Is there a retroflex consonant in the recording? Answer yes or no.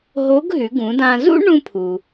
yes